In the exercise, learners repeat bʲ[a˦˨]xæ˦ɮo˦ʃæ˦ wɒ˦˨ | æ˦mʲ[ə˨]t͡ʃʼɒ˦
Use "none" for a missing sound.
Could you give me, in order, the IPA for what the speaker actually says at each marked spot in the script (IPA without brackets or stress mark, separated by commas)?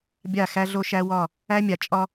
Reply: a˦˨, a˨